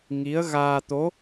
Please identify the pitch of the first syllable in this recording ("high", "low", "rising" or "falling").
rising